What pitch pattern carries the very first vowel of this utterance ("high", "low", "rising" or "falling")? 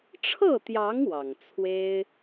falling